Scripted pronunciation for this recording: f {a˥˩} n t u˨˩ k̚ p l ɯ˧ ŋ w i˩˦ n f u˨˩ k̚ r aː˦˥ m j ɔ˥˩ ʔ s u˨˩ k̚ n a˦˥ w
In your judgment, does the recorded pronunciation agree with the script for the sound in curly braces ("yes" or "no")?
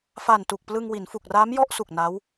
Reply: no